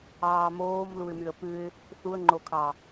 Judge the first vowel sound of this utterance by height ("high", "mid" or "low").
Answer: low